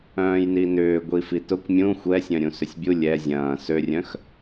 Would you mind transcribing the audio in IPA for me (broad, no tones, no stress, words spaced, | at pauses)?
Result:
œ̃ːjninʏː ɡʷifitʊkʷ mʲũ xʷɛsʲœ̃ ɾʲũsʏsʲbʲu lʲɛ zʲɐ̃ː sørʲœ̃x